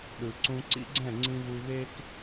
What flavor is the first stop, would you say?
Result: implosive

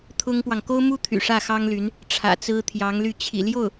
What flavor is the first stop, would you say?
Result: aspirated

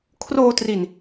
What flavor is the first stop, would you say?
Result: aspirated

